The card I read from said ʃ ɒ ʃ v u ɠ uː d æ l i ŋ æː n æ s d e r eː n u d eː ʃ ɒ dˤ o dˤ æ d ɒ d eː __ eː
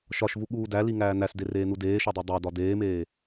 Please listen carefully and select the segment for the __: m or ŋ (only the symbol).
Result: m